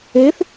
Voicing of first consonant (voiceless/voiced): voiceless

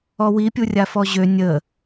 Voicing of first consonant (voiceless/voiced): voiced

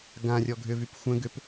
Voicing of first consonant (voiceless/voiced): voiced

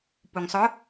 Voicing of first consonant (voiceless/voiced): voiceless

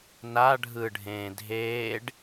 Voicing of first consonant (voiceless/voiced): voiced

